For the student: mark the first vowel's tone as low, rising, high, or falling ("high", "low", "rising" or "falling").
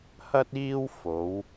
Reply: high